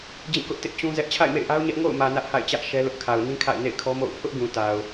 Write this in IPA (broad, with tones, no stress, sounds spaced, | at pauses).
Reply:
d͡ʑ ĩ˦˨ k ʊ˦ ʔ t ɪ˦ ʔ t͡ɕ ũ˦ z ɛ˦ ʔ t͡ɕʰ a̰˦˨ ɪ̯ m ḛ˦˨ ɪ̯ ʔ a˦ ʊ̯ ɲ ɛ˦ ʔ ŋ o̰˦˨ ʊ̯ m ä˨ n ä˦ ʔ h a̰˦˨ ɪ̯ t͡ɕ ä˦ ʔ ʃ ɛ˦ l ʊ˦ ʔ kʰ a˨ ʊ̯ n ĩ˦ kʰ a̰˦˨ ɪ̯ n ḛ˦˨ ɪ̯ kʰ ɔ˦ m o̰˦˨ ʊ̯ pʰ ʊ˦ ʔ ɡ ũ˨ t a˨ ʊ̯